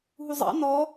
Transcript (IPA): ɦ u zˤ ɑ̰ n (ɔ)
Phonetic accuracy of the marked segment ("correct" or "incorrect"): correct